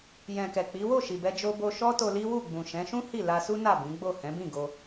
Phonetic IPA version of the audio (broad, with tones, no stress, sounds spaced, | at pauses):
j ɛ̃˨ k ɛ˨ k͡p i˨˦ w o˦˨ ʃ i˨ b ɛ˧ d͡ʒ o˧ b o˧ ʃ ɔ˦ t o˧ l i˦ w u˦˨ ɡ͡b ũ˨ ʃ ɛ̃˨˦ ʃ ũ˦ h i˦˨ l a˧ s u˦ n a˦˨ b ĩ˨˦ ɡ͡b o˦˨ h ɛ̃˨˦ b ĩ˦˨ ɡ o˧